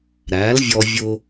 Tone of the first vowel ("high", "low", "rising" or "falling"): rising